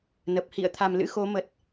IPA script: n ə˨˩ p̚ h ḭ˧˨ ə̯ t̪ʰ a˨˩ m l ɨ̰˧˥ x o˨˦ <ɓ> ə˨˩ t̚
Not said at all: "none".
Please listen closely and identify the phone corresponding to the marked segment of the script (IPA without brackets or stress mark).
m